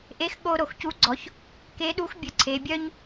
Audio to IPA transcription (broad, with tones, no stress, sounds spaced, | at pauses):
ʔ e˧˥ x ɠ o˧ ɾ o˩ x c u˧˥ ɡ͡ǀ ɔ˩˧ ç | k e˧˥ ɗ u˧˥ x bʲ ə˩˧ ǀʰ e˩˧ bʲ œ˥ ɲ